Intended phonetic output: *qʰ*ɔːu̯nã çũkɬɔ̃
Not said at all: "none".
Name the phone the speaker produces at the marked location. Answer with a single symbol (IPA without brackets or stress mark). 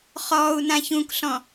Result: χ